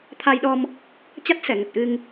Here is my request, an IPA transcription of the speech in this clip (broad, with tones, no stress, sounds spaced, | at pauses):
t̪ʰ a˧ j ɗ ɔ˧ m | t͡ɕ a˦˥ t̚ s ɛ˧˩ ŋ ə˨˩ t̚ ʔ ɨ˧ ŋ